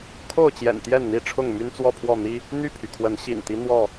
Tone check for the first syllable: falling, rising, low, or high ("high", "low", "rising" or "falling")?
falling